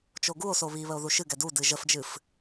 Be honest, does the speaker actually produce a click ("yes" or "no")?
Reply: no